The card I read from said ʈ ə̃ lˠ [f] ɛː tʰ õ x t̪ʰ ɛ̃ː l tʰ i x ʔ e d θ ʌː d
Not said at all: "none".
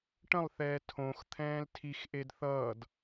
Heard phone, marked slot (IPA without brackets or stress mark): θ